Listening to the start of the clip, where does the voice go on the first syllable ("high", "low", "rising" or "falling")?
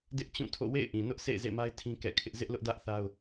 high